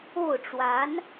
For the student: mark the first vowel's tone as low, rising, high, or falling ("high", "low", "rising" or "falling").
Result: falling